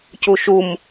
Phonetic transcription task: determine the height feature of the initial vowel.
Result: high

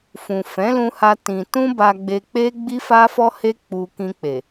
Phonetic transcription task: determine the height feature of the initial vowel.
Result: high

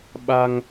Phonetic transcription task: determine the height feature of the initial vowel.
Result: low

